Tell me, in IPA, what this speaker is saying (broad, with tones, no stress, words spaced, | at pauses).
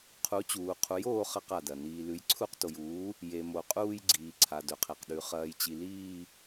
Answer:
qʰu˩˥t͡ɕuː˩ qʰu˩˥joː˦˨ χɐ˦˨qa˩dɐ˩ niː˩lʉ˩˥jǀʰu˦˨q to˩juː˩˥ | je˩mo˩qʼuː˦˨j ɡ͡ǀiː˩ ǀʰa˩ dɵ˩qʰe˩qɗʉ˩˥ χɐː˩jt͡ɕi˩ liː˦˨